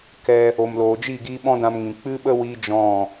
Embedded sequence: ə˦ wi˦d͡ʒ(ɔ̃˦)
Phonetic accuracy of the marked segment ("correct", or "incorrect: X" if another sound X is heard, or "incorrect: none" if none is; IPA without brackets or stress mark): incorrect: ɔ̃˦˨